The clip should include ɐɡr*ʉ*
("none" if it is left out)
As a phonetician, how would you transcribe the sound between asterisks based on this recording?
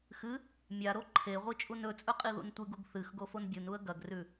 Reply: ʉ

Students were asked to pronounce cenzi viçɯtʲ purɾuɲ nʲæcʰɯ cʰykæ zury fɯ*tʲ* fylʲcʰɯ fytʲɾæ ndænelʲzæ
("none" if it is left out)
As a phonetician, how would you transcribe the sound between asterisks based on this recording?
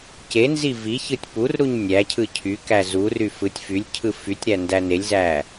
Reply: tʲ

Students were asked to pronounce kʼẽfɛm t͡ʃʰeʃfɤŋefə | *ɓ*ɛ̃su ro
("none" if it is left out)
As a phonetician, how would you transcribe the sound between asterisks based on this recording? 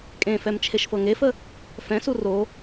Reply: f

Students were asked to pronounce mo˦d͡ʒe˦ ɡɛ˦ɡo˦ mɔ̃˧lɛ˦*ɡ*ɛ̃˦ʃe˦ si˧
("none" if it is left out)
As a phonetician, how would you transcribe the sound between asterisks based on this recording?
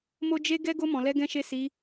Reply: ɡ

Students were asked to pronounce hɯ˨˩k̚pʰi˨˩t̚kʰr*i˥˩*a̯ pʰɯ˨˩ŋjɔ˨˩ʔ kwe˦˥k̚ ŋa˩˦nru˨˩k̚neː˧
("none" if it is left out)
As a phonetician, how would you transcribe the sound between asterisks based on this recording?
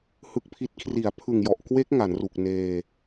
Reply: i˩˦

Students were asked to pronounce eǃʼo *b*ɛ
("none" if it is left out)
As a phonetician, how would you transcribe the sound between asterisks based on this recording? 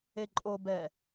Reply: b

